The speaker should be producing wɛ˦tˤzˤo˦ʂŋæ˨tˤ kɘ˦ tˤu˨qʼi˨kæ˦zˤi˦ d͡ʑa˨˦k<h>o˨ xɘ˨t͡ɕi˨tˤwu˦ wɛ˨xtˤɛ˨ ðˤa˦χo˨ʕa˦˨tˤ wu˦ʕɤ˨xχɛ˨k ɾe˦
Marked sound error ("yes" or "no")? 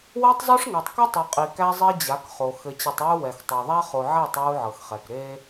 yes